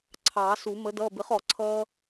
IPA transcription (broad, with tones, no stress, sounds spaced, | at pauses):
ǀʰ ɑː˨˩˦ s u˨˩˦ m ə˧˥ d ʌː˧˥˧ b ɪ˧˥ χ ɔ˨˩˦ ǀʰ ʌː˥